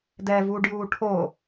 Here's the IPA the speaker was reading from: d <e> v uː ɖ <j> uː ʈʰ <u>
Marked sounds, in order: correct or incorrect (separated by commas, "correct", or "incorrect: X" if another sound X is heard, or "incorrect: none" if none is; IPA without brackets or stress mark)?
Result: incorrect: ɛ, correct, incorrect: o